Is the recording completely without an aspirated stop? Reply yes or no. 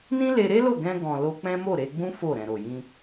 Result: yes